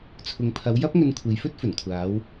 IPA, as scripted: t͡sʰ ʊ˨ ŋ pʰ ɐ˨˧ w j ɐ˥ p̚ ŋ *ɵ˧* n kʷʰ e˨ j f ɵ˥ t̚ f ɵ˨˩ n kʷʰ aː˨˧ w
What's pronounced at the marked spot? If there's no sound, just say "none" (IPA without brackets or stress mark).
ɵ˧